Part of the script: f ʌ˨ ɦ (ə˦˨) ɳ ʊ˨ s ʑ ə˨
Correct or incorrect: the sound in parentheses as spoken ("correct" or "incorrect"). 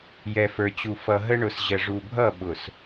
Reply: incorrect